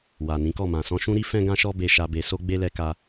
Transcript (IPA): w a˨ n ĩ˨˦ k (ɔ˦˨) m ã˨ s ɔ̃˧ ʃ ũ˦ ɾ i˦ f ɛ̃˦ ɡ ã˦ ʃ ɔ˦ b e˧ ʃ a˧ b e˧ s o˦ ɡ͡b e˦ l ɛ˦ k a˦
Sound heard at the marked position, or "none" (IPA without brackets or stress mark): ɔ˦˨